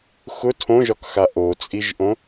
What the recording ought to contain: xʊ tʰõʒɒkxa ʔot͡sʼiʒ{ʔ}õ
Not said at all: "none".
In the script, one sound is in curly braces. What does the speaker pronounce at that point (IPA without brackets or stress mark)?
ʔ